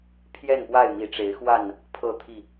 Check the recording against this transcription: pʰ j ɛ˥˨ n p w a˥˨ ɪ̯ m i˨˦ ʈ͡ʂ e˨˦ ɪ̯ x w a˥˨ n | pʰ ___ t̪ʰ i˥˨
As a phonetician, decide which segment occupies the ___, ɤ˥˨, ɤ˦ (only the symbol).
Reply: ɤ˥˨